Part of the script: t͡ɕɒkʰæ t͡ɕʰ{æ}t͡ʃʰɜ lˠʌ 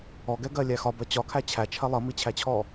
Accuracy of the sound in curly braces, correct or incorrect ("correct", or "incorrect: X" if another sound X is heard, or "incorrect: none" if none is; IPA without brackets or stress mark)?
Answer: correct